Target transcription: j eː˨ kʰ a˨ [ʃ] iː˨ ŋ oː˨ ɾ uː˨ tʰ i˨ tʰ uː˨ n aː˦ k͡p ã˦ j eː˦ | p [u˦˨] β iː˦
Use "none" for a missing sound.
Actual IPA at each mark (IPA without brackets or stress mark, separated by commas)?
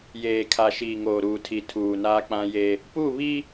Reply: ʃ, u˦˨